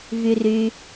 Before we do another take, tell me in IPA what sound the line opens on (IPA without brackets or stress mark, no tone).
v